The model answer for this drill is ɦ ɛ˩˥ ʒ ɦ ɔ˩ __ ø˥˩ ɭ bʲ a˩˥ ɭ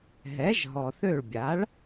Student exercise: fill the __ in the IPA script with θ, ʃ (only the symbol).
θ